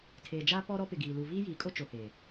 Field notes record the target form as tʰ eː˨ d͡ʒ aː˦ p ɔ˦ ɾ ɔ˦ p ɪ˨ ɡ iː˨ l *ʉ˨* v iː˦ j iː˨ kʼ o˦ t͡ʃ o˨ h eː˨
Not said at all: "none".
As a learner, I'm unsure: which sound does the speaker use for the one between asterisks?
u˨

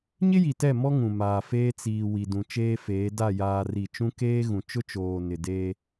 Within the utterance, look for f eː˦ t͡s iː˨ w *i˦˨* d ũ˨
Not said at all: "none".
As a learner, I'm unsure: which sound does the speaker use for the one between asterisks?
i˨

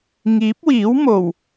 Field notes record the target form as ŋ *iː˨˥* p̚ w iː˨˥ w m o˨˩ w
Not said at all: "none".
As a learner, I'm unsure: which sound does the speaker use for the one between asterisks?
iː˨˥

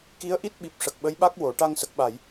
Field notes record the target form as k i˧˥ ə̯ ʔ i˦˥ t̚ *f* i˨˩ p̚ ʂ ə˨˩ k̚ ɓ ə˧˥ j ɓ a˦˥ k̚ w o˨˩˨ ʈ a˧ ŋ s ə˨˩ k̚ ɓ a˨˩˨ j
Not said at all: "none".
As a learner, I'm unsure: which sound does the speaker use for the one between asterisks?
ɓ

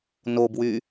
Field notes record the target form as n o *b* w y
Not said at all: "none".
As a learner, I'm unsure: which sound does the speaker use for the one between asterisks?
b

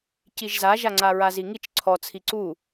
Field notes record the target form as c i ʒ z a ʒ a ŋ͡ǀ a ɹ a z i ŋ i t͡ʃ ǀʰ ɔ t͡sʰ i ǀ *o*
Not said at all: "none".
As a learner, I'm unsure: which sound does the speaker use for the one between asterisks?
u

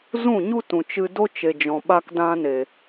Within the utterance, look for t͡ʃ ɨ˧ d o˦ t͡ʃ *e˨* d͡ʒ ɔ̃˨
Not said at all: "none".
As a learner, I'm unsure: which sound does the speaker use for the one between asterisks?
e˨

